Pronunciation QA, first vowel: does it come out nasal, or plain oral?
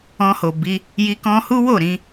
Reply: nasal